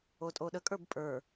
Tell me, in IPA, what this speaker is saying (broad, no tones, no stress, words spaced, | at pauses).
otʼoɗəkʼə˞b pʼə˞